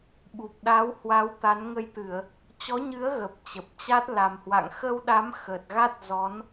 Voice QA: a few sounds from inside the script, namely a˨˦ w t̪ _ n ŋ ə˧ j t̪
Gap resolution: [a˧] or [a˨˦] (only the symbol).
a˨˦